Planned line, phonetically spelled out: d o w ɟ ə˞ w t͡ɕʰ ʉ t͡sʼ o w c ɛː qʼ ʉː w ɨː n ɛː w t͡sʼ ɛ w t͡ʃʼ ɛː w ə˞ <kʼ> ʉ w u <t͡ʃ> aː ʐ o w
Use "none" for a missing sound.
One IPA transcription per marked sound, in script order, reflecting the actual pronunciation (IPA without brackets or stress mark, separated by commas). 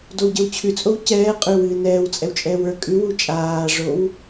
kʼ, t͡ʃʼ